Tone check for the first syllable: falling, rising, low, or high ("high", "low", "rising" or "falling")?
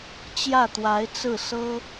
falling